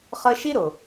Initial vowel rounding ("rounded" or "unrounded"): unrounded